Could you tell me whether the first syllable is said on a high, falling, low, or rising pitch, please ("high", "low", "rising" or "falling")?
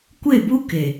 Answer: falling